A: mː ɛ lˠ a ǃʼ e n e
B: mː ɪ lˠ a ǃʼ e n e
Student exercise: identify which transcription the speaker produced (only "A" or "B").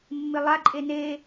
B